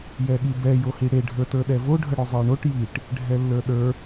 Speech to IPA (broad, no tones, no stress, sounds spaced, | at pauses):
j ɛ ɠ i b ɛ j o h i ɽ e ɖʱ ə˞ t ə˞ ɗ ɛ v o ɖʱ ə ɽ ø zˤ ə˞ ɳ o ʈ j i ʈ | ɖʱ ɛ lː ə˞ ɗ ə˞